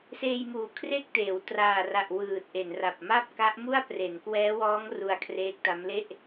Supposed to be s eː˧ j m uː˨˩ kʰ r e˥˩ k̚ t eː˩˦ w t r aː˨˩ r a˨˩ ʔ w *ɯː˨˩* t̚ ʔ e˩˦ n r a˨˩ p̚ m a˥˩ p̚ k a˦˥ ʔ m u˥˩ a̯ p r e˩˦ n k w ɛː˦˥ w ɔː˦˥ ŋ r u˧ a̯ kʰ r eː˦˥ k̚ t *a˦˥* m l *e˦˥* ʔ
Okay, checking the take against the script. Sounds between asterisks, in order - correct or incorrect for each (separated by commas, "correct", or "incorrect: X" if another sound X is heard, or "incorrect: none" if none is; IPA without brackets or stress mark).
correct, correct, incorrect: e˥˩